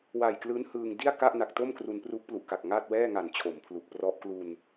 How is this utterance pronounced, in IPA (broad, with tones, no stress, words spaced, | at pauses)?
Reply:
wa˨˩jklɯː˦˥n hɯː˧ŋ di˥˩a̯ ka˥˩ʔna˨˩k̚to˥˩m kru˧n pru˦˥k̚plu˨˩ʔka˨˩k̚ ŋaː˥˩t̚wɛː˥˩ŋa˨˩n t͡ɕʰo˩˦mpʰlu˨˩k̚ prɔ˦˥ʔklu˧n